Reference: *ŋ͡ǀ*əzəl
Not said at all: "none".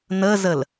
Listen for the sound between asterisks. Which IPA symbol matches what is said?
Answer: n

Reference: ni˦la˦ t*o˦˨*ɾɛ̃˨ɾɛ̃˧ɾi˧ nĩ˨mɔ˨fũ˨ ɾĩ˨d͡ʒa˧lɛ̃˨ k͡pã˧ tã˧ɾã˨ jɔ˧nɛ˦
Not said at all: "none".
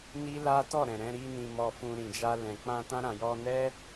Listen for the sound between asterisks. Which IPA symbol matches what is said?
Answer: ɔ˦˨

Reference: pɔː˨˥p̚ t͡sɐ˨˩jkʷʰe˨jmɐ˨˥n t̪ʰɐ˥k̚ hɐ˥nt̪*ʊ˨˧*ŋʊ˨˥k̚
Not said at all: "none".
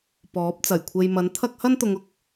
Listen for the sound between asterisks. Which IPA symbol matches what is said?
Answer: ʊ˨˧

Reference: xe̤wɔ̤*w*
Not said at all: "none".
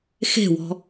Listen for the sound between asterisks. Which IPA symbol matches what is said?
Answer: none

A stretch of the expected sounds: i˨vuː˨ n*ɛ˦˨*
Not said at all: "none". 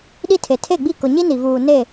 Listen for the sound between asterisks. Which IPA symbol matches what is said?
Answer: e˦˨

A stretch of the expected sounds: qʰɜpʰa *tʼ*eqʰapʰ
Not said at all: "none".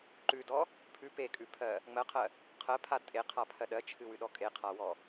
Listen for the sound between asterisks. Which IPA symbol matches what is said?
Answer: tʼ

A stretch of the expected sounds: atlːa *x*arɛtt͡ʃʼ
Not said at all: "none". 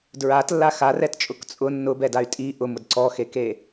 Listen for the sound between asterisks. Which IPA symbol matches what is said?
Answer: x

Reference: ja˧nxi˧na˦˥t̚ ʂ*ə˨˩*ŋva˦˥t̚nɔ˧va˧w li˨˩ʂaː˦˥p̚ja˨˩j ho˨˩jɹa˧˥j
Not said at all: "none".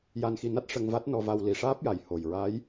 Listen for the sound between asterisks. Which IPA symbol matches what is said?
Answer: ə˧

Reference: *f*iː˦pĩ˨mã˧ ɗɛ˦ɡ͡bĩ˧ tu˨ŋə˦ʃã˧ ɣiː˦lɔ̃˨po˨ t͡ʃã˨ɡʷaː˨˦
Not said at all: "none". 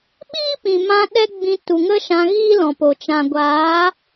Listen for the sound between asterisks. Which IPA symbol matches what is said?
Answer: ɓ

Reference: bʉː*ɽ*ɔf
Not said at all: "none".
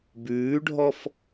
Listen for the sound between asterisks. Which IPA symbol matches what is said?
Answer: ɖʱ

